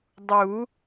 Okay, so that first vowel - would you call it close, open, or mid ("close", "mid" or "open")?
close